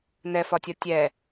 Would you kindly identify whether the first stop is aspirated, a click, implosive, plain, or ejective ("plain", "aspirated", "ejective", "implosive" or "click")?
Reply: plain